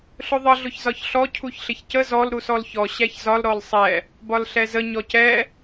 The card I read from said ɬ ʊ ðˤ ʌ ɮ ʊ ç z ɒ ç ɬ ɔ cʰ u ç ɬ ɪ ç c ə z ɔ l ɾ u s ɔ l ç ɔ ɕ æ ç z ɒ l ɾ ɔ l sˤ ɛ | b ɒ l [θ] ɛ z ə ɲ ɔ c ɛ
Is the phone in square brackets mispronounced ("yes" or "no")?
yes